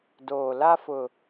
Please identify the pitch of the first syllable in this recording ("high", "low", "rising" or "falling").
low